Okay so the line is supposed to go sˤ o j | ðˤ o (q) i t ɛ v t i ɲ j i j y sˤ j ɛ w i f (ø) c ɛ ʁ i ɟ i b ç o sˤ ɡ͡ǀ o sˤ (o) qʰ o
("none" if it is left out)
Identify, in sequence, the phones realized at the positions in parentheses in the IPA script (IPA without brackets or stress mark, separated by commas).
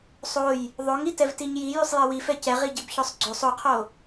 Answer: ŋ, ɛ, o